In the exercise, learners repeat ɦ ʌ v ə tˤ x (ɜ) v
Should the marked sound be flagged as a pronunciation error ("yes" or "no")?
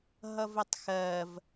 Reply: no